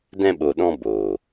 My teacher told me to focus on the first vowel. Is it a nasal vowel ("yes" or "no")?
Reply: yes